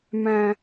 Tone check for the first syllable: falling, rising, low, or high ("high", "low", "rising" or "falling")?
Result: low